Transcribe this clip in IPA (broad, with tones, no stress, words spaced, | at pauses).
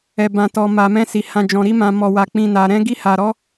ɛ˨bã˨tɔ˨ ma˨mɛ̃˧si˨ hã˨d͡ʒɔ̃˨ɾi˧mã˨ mɔ˨wa˨k͡pĩ˨na˨ ɾɛ̃˧ɡi˧ha˨ɾɔ˨˦